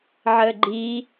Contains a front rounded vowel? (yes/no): no